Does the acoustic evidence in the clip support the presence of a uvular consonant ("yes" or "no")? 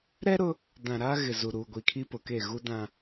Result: no